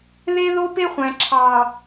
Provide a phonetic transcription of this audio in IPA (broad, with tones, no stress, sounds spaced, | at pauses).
ð e˦ ð o˦ p e˦ χʷ æ̃˨ ǁʰ ɑ˨